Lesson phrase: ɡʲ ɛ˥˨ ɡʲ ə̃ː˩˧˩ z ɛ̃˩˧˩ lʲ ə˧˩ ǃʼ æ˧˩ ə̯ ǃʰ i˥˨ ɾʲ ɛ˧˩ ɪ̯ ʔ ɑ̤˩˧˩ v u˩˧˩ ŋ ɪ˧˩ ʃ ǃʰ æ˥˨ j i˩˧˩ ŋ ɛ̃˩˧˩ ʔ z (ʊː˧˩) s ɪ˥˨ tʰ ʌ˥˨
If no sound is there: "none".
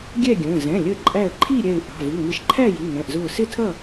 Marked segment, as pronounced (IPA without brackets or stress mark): ʊː˧˩